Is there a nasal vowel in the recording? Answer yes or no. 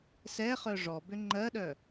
no